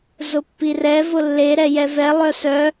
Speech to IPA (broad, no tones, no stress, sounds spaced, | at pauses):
z ʊ pː i r ɛ v ʊ lː e ɾ ɛ j ɛ v ɛ lˠ œ s œ